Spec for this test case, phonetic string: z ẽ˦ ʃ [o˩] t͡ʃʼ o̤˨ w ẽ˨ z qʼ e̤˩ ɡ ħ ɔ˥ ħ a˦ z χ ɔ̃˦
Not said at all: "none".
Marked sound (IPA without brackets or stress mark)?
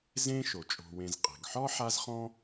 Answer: o˩